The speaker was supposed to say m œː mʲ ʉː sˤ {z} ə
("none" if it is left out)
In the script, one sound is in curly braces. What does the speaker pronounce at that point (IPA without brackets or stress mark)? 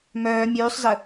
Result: z